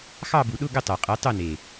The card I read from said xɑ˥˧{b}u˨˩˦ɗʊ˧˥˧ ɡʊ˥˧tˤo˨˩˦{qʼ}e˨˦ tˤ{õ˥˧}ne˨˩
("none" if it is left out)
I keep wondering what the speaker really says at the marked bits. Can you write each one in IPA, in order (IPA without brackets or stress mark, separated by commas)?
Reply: b, qʼ, o˥˧